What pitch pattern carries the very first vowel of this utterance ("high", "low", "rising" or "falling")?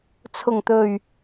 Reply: low